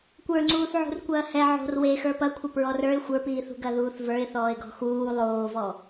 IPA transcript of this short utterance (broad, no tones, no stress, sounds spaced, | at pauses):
kʷ ə˞ ŋ͡ǀ uː θ ʕ ṳ r kʷ ɐː h ɛ ʕ o̤ r w e x ə˞ p ɐ kʷʰ ɐ p ɹ ɔ r ə˞ ɪ̯ xʷ ə˞ p iː θ ṳ ɡ ɐ ð uː θ v ə˞ ɪ̯ θ ɔː ɪ̯ ɡ ɔ̤ x uː lˠ oː v ɔ